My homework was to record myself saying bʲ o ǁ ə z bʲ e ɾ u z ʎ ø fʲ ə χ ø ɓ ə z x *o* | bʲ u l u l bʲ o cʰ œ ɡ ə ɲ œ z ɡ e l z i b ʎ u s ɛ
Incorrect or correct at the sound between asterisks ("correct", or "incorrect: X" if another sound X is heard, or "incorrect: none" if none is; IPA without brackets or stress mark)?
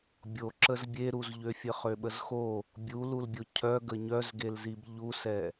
correct